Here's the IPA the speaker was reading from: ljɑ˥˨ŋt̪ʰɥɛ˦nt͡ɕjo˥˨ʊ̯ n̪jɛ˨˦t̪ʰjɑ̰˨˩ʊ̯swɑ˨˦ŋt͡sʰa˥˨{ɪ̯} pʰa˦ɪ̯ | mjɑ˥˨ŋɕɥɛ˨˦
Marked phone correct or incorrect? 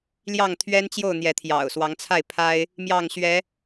correct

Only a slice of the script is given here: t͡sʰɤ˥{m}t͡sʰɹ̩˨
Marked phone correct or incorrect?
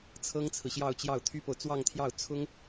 incorrect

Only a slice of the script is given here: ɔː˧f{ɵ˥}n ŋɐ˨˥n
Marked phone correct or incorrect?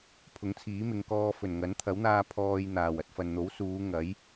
incorrect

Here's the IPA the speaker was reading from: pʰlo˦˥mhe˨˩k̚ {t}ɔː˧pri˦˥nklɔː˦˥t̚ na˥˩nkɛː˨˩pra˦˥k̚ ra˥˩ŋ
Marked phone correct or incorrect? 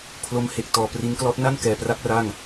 correct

